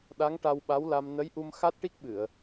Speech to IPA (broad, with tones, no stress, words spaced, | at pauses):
ɗa˧˥ŋʈa˧wɓa˧˥wla˧m nə˧˥jʔu˧m xa˦˥t̚ʈi˦˥k̚ɓɨ˨˩˨ə̯